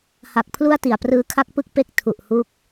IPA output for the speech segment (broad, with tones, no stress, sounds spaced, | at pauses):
h a˨˩ k̚ pʰ l u˥˩ a̯ t i˨˩ a̯ p r ɯː˧ kʰ a˥˩ k̚ p ɯ˥˩ k̚ p e˦˥ k̚ tʰ u˨˩ ʔ h u˦˥ k̚